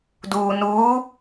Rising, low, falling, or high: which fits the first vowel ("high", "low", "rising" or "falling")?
low